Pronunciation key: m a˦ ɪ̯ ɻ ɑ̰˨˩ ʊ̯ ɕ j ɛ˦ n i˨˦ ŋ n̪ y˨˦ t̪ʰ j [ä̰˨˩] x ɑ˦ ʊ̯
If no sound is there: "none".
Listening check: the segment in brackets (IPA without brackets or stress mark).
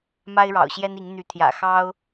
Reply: ä̰˨˩